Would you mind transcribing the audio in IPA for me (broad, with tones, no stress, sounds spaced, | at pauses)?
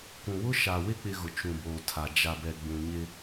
k ũ˨ w ʊ˦ ʃ a˨ w ɪ˦ k͡p ɪ˦ ɣ ʊ˨ t͡ʃ ũ˨ b oː˨ tʰ a˨ d͡ʒ a˨ b ɛ˨ ɡ͡b ũ˨ ɲ ɪ˦